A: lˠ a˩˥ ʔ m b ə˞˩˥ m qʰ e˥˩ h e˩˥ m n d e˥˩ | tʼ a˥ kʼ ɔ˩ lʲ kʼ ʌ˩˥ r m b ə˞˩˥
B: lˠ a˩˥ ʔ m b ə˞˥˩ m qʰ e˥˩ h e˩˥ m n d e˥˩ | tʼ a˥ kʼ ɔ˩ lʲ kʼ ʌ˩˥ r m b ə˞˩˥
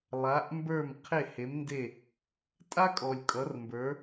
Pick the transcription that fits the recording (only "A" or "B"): B